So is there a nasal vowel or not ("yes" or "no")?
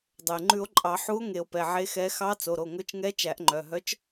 no